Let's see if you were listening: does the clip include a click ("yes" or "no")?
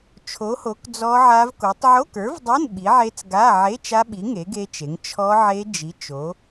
no